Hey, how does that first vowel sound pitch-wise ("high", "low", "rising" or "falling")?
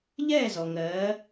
falling